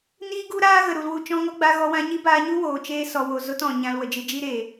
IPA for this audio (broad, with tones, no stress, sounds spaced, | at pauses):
n iː˦ ɡ u˦ ɾ aː˦ ɣ ə˨ ɾ u˨ l w u˧ t͡ʃ ɔ̃˧ ŋ ɔ˦ ɡ͡b a˧ ɣ ɔ˧ w ã˧ ɲ i˦ b aː˧ ɲ u˦ w oː˨ t͡ʃ eː˦ s ɔ˨ w o˨ z o˦ t ɔ̃˨ ɲ ã˧ l w ə˨ d͡ʒ ɨ˧ d͡ʒ i˦ ɾ eː˨